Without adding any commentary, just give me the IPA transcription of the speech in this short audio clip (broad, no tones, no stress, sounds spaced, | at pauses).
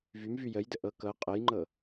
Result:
v y m v y j ə j d ə ʔ ɤ k ɤ qʼ ə j ŋ͡ǃ ɤ